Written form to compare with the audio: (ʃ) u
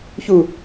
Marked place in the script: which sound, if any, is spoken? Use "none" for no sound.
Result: ç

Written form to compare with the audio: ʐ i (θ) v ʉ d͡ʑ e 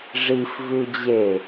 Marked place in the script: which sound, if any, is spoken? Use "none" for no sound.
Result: f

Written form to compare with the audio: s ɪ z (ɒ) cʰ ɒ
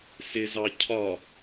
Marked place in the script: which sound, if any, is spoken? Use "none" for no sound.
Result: ɑ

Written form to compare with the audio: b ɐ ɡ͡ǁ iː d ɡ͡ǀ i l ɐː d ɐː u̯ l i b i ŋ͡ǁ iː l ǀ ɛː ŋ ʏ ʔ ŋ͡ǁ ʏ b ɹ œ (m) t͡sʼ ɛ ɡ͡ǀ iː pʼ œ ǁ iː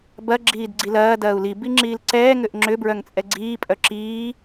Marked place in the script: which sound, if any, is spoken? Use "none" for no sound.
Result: ŋ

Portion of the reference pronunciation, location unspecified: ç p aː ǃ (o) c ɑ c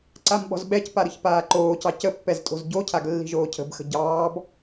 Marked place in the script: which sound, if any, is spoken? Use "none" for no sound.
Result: oː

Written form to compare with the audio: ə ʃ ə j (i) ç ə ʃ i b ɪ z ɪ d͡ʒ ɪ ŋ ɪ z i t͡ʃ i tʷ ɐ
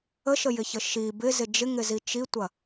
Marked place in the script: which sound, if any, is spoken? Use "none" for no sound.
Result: ɪ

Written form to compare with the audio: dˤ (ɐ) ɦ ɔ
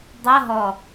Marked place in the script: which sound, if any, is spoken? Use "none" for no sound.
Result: ɐ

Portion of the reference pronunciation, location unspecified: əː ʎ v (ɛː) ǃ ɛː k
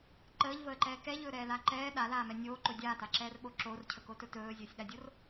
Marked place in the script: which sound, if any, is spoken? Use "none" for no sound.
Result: əː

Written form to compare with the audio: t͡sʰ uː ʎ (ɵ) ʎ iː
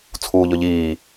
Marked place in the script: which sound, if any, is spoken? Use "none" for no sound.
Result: ɵ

